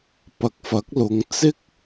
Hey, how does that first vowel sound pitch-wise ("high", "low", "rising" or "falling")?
rising